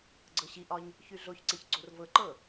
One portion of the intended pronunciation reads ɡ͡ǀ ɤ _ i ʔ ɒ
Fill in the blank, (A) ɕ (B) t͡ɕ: A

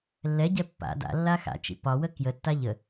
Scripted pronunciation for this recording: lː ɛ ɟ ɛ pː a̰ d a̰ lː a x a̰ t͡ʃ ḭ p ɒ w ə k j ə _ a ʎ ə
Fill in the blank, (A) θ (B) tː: B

